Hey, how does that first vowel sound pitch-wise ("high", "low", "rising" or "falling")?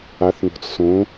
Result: rising